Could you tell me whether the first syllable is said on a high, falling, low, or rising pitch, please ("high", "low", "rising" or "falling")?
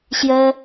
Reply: high